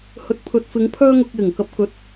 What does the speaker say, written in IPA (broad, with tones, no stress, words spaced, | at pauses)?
hɵ˨t̚pʰɵ˨t̚fɪ˨˧ŋ pʰœː˥ŋʊ˧k̚jɪ˨˩ŋkɐ˧p̚ kɵ˨˥t̚